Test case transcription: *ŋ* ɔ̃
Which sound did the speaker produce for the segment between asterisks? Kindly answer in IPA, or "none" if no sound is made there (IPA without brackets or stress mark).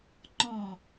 ŋ͡ǃ